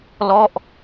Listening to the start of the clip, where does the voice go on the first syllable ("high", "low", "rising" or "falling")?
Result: falling